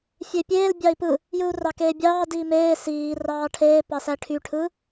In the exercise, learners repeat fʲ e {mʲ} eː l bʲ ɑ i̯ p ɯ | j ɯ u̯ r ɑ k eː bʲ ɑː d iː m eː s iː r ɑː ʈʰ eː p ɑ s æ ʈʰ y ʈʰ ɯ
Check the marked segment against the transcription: incorrect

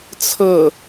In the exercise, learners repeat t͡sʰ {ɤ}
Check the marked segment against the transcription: correct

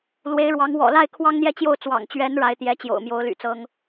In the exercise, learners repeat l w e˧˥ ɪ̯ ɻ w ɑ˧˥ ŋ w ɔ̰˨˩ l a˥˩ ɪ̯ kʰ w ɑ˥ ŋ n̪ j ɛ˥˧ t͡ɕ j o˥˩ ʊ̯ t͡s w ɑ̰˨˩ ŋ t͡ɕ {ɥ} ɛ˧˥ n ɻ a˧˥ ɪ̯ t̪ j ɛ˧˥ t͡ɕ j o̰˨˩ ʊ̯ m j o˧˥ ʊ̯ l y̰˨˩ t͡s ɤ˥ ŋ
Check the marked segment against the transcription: correct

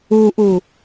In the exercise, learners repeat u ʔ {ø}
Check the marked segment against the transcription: incorrect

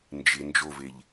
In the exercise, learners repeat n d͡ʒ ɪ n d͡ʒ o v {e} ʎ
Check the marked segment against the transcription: correct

